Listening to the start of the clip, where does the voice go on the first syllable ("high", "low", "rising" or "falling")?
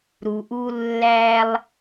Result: low